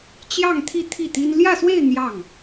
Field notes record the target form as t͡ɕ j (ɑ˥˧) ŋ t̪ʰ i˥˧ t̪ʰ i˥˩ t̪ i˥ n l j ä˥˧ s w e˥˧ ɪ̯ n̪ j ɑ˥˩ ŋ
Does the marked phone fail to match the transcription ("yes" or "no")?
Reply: no